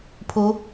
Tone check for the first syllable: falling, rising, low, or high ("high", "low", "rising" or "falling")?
rising